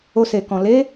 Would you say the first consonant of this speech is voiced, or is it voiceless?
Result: voiceless